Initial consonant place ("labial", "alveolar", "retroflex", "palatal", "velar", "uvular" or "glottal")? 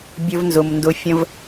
labial